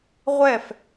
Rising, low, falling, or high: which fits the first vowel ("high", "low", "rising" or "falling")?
falling